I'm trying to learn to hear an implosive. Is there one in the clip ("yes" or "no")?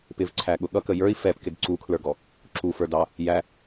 yes